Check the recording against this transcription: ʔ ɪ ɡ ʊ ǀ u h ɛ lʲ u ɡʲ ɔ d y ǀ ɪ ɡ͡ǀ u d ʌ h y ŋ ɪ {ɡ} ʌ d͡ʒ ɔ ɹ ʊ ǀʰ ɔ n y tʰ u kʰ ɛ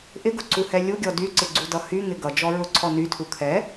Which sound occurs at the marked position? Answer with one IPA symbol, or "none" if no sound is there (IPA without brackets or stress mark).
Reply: ɡ